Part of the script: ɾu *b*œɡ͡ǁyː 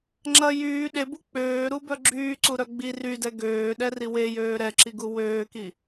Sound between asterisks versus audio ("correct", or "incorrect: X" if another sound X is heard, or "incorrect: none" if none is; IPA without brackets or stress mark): correct